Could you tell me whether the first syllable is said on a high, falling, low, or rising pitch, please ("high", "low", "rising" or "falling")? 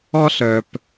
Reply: high